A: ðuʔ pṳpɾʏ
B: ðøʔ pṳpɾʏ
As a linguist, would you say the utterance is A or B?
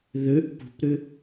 B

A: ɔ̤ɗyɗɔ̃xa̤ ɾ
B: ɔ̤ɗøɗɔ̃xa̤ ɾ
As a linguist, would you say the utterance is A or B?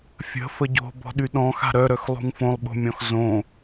A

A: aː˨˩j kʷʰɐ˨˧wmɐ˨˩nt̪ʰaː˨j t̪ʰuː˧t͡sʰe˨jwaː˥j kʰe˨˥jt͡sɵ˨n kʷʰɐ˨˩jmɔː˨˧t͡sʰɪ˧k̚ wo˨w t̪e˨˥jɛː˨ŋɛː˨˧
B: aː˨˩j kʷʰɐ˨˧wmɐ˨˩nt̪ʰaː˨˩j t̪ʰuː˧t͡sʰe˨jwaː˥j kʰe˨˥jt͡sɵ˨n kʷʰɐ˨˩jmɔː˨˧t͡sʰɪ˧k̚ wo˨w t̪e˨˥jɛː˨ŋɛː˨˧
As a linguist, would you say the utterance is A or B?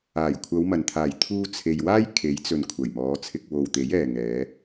B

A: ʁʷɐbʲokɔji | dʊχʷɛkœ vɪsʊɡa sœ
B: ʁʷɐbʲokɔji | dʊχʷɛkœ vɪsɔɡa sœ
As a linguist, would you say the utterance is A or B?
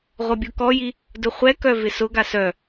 A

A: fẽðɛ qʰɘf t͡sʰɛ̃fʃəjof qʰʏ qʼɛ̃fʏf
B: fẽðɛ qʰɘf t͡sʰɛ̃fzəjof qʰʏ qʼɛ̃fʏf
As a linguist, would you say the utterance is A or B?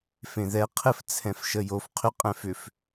A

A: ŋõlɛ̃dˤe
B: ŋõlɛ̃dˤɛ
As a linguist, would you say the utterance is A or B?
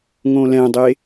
A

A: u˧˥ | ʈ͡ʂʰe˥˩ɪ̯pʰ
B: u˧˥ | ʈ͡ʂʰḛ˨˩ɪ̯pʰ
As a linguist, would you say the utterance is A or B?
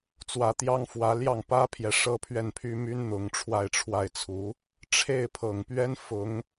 A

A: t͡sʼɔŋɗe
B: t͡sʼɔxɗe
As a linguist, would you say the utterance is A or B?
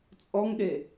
A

